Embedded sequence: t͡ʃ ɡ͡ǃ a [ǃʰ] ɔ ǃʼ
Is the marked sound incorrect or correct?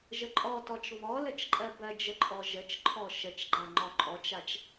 incorrect